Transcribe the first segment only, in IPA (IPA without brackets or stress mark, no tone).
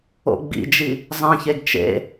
o̰